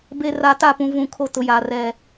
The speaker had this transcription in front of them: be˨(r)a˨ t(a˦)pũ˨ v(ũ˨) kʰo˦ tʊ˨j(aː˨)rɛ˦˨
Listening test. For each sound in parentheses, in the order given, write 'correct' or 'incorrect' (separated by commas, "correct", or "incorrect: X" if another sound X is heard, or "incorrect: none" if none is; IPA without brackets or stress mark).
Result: correct, incorrect: a˦˨, correct, correct